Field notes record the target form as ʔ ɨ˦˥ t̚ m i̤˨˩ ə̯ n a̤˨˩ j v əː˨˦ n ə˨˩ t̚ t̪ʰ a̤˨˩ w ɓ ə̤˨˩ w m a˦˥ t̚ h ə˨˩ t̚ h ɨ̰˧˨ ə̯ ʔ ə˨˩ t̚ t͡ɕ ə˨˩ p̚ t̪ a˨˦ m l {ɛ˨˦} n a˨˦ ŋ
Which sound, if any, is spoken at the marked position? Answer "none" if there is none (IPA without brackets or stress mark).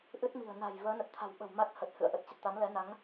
ɛ˨˦